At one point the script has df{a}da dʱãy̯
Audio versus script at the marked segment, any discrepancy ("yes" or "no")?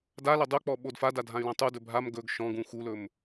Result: no